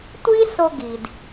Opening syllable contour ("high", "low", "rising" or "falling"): high